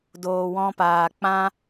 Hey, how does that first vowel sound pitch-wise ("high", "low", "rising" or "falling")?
low